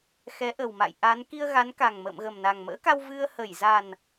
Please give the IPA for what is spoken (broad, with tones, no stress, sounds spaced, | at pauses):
x ɛ˨˦ ʔ ə˨˩ w m a̰˧˨ j ʔ a˨˦ n k i˧ ə̯ ɣ a˨˦ n k a˨˩ ŋ m ə̰ː˧˨ m ɣ ə˨˩ m n a˨˩ ŋ m ə̰ː˧˥ k a˧ w v ɨ˧ ə̯ h ə˧˩ j z a˨˩ n